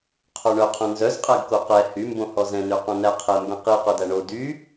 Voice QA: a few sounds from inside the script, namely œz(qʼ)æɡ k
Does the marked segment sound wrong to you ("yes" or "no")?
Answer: no